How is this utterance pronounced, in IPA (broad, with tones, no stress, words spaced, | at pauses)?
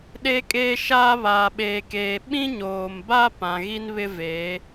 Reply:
ɗe˦kʼeː˦ʃaː˦ βaː˨ɓeː˨keː˨ ɓĩ˦ɲoː˨mba˦ pã˨ɣi˦n βɪ˦veː˨˦